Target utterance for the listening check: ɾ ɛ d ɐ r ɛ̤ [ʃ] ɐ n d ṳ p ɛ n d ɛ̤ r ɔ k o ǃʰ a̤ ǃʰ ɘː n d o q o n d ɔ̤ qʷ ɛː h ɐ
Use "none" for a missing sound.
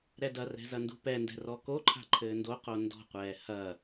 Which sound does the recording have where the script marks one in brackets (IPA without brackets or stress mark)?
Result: z